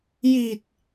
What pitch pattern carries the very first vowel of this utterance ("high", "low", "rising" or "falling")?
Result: low